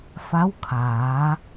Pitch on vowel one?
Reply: rising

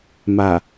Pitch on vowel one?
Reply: low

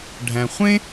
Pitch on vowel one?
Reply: low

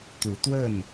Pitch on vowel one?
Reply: rising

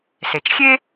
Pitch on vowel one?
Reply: low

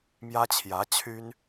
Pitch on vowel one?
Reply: high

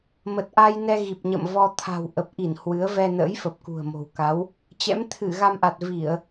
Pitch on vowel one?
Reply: low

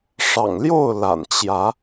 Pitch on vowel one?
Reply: low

